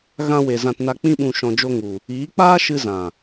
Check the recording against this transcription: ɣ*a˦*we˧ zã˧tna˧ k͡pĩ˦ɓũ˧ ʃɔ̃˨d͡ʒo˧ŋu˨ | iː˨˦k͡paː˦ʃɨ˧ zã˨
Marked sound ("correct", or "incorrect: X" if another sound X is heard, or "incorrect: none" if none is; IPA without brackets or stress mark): incorrect: ã˦